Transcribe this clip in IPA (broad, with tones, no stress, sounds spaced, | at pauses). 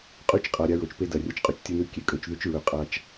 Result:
qʼ ʉ˦ t͡ʃ qʼ a˨ ɾʲ a˦ ɹ o˨ t͡ʃ p e˦ d ɐ˨ rʲ ɐ˧ t͡ʃ qʼ ɵ˧ t͡ʃ tʲ ɨ˧ n ʉ˧ kʲ e˨ kʼ ɵ˧ t͡ʃ ð ʉ˦ t͡ʃ ɹ ɵ˧ qʼ a˦ t͡ʃ